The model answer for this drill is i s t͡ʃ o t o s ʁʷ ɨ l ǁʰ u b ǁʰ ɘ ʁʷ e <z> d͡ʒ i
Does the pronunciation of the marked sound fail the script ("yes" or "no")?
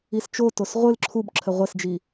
yes